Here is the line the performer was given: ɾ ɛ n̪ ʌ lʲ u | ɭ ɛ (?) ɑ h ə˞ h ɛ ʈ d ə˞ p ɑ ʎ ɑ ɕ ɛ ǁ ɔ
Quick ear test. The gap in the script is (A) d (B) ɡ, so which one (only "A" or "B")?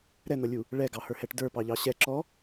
B